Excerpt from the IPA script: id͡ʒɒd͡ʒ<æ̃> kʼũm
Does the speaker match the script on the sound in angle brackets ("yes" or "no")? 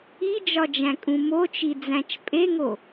yes